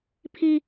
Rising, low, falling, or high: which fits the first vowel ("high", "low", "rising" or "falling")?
high